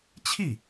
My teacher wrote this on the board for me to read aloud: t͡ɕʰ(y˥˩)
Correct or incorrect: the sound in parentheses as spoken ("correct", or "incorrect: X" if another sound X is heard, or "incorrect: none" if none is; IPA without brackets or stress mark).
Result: incorrect: i˥˩